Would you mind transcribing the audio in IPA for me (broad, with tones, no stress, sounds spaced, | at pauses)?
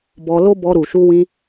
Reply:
b ɔ˧ l o˦ b ɔ˧ ɾ u˨ ʃ u˧ w ĩ˧